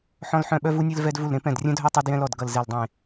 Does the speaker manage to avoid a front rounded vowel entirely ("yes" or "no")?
no